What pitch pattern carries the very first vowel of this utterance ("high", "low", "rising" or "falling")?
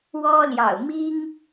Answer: high